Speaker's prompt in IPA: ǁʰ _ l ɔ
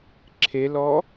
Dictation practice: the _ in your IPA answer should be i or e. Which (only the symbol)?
e